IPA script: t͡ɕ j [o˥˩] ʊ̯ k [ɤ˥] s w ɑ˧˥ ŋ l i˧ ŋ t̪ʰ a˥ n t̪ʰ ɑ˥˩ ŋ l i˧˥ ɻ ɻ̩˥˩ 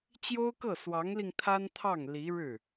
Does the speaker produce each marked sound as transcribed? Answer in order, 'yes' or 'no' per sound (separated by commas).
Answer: no, no